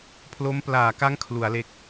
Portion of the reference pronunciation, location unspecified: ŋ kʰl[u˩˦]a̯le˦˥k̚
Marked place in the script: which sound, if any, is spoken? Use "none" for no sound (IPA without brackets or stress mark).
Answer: u˩˦